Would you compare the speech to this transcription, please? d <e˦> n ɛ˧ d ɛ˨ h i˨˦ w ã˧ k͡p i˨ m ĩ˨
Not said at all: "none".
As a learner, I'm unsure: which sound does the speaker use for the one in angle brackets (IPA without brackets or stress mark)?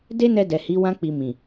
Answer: e˦